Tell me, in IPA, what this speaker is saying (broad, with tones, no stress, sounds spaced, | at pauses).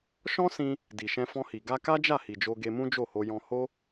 ʃ ɔ̃˦ s ĩ˧ | d i˨ ʃ ɛ̃˧ f ɔ̃˧ h i˨ ɡ a˧ k a˦ d͡ʒ a˦˨ h i˨ d͡ʒ o˧ ɡ e˧ m ũ˦ d͡ʒ o˦˨ h o˧ j ɔ̃˧ h o˦